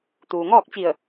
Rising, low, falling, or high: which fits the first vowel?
low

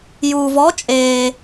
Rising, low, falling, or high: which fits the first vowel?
low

